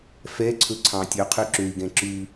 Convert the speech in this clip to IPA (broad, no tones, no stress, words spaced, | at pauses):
fɛǀʰɵ ǀʰɑ̃tʲɵqʰy ǁøi̯ɡɛ̃ ǁʉ